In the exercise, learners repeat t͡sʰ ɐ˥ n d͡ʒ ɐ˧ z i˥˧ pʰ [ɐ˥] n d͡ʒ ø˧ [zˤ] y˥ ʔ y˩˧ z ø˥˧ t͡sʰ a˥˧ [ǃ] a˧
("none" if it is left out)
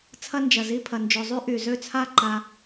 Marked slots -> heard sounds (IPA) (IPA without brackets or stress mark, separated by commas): ɐ˧, zˤ, ǃ